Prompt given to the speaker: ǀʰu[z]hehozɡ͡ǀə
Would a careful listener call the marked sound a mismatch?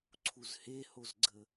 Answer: no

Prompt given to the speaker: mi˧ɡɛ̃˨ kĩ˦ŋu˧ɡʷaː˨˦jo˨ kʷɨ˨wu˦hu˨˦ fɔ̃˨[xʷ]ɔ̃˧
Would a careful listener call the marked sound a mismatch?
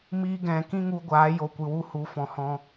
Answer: yes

